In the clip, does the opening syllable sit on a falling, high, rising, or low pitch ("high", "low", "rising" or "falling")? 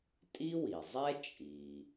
high